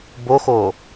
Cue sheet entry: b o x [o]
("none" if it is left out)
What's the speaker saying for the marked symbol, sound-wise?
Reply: o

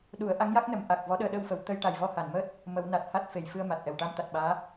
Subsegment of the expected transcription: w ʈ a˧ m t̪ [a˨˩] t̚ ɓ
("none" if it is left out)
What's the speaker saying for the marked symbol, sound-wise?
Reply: a˨˩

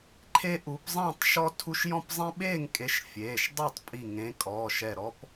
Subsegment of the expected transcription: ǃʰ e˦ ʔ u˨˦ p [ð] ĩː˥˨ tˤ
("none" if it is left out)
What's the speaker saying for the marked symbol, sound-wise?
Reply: zˤ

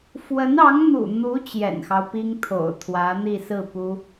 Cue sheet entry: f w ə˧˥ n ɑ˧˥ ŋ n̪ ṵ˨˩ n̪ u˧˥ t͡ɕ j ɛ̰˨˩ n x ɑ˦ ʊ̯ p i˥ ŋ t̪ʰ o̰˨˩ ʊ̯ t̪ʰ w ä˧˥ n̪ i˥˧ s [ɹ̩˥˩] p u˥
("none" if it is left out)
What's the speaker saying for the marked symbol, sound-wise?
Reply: ɹ̩˥˩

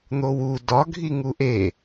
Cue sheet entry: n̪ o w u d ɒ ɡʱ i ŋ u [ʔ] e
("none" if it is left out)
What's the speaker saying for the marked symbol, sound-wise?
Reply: ʔ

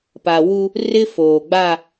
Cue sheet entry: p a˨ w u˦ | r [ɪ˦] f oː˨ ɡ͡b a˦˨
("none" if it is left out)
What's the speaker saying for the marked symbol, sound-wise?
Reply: ɪ˦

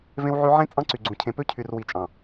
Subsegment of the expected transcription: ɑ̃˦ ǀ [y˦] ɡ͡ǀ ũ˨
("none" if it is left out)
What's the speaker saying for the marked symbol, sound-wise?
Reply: y˨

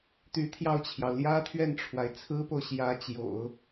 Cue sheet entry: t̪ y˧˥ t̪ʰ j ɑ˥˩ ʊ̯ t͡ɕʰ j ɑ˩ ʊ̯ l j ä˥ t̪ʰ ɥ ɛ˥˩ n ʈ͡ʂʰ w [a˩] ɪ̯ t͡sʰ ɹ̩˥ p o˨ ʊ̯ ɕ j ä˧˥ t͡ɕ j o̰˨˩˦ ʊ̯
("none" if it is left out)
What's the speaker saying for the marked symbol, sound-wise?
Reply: a˩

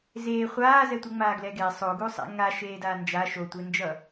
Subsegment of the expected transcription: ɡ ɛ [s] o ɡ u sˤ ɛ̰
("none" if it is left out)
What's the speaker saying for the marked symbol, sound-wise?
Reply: sˤ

